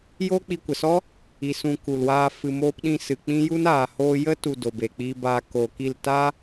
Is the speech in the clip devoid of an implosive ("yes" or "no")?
no